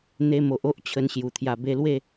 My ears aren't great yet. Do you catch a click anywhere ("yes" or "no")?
no